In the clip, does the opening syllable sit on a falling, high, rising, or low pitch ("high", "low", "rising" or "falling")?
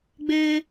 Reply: high